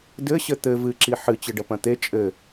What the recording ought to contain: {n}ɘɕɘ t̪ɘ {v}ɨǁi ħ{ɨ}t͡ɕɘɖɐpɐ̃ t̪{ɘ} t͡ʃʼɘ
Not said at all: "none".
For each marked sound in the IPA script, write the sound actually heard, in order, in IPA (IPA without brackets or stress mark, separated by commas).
d, v, ɨ, e